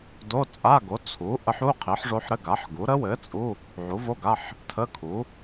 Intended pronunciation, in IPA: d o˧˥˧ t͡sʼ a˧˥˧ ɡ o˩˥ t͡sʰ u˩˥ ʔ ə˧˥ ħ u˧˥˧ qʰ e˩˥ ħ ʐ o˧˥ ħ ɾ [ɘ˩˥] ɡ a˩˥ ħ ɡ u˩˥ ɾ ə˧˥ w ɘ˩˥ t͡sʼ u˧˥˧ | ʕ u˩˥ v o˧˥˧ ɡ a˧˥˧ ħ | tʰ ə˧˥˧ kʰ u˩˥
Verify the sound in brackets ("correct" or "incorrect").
incorrect